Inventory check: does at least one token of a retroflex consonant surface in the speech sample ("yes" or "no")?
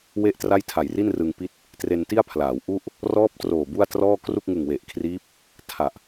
no